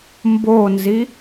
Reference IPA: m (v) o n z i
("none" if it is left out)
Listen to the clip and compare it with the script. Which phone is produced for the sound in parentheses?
b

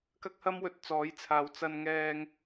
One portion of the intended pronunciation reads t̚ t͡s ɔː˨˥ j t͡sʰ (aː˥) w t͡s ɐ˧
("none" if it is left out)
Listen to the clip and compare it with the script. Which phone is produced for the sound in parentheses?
aː˨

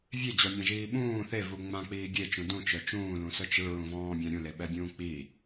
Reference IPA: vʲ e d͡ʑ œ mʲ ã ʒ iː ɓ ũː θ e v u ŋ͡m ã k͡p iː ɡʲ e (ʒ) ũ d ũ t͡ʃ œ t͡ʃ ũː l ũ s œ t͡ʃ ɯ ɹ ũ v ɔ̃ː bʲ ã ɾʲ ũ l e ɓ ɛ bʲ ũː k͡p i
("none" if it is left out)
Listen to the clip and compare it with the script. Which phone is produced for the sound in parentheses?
t͡ʃ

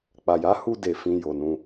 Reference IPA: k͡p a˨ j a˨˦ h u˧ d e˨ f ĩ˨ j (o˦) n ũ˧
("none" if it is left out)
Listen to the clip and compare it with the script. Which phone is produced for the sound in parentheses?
o˨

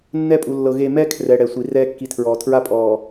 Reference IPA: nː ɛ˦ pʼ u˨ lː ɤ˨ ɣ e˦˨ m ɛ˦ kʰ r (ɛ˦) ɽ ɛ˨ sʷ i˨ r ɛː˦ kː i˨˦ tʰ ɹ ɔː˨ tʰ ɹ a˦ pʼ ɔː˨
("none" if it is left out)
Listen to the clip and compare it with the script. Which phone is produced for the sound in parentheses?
ɛ˨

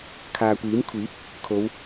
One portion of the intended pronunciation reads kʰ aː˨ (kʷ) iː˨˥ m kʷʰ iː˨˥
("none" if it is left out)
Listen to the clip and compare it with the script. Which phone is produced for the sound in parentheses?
kʷ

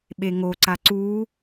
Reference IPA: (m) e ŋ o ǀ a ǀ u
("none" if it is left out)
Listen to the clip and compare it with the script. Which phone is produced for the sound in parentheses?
ɓ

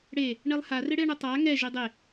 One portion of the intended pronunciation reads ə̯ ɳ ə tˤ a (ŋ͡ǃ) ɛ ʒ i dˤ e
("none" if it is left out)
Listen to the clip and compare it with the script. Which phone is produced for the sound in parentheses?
ŋ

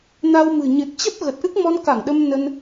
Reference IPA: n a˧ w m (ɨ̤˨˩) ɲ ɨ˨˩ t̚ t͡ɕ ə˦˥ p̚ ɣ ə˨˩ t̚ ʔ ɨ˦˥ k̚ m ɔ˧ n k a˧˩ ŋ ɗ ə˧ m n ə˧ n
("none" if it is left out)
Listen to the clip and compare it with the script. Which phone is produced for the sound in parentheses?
ɨ̤˨˩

